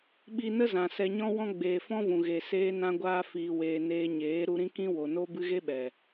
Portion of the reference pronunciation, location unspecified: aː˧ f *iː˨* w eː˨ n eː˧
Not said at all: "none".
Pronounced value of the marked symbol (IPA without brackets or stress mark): iː˨